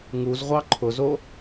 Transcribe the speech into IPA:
ŋuzʁʷɑ ǃʰʊzo

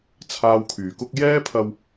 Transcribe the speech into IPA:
t͡sʰaː˧wkʰyː˨˩kʊ˥k̚ jɛː˥pʰɐ˧w

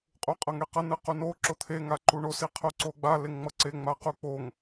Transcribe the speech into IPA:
qʼuqʼʌŋeqʌ nɯquno ǁot̪ʰe ŋaǃuɳos iqʰoǀoɡ͡ba leŋŋ͡mʌǀe ŋ͡maquk͡poŋ

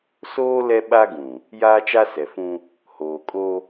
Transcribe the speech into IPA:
soː˦ lɛ˦ɓa˦ɡũ˨ | jaː˦t͡ʃa˦sɛ˨fũ˦ | hoː˨kʼo˦

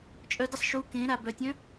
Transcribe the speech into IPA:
t͡ʃʼœ dəsˤ ʃu kẽɾa bœtʲœ̃

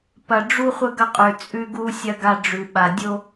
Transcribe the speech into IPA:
pɐ˨ɖ͡ʐu˦χʷə˦ ɡɐ˦qʼʉ˨ t͡sʼʉ˦ɡu˦sʲɐ˦ ɡa˦ ɖ͡ʐʉ˨ɓa˨ dʲo˦

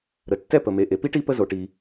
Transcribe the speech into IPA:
ɾə˩tːɛ˥ pə˩me˩ ʔe˩pi˥ʈi˥ pə˥zo˩ʈi˩

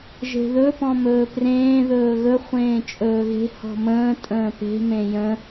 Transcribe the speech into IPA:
ʒe̤ðɵ pɔ̃mɵːprẽː ðɵːɣɵ χʷẽːt͡ʃʼɵːɣe̤ hɔ̤mə̃ː tʼə̃ːpe̤ mẽjə̃

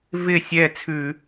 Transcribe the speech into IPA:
vɪ˥˩sʲɛ˥˩ t͡sʰʉ˧˩˧

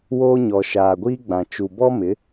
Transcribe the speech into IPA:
woː˦ɲɔ˨ ʃaː˨ɡʷiː˦ɡ͡bã˨ t͡ʃu˨bɔ˦mɪ˨˦

